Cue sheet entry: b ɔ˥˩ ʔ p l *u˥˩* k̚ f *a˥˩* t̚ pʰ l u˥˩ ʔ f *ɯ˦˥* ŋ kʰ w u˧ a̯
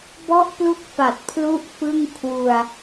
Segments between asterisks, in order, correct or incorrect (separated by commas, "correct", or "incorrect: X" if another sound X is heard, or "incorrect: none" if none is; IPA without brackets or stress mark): correct, incorrect: a˨˩, incorrect: ɯ˥˩